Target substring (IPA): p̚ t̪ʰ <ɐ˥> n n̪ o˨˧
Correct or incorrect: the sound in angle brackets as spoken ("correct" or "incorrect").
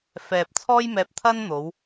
correct